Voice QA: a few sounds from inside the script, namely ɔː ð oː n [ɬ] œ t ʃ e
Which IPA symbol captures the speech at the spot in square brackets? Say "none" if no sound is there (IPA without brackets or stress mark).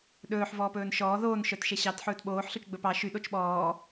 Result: ʃ